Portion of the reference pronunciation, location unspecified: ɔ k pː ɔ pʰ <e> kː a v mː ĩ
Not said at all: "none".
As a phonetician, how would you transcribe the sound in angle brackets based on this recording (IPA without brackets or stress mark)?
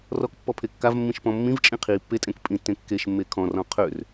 e